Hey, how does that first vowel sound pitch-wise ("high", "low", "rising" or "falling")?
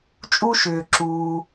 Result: high